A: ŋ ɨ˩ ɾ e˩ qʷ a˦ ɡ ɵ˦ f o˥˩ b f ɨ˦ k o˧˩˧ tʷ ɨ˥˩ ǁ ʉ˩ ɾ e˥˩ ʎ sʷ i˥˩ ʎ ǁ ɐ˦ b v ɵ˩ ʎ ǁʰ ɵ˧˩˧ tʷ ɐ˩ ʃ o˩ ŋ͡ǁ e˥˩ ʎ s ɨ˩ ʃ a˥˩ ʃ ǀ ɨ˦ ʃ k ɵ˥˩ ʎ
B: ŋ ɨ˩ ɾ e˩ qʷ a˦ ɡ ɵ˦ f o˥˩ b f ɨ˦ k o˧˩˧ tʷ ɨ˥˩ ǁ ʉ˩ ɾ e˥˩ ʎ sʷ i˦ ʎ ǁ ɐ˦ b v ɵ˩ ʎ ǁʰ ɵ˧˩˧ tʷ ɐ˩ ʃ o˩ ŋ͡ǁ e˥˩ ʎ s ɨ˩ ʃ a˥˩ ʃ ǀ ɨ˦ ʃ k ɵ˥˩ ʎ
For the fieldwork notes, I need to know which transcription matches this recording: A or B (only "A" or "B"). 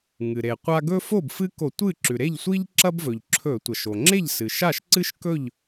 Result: B